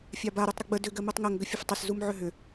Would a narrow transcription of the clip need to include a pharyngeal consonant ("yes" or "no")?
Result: yes